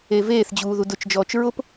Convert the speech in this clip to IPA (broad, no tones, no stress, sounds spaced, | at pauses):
e v eː θ d͡ʑ uː ð u d ʊ t͡ʃ d͡ʒ ɔː t͡ʃ ɹ ʊ p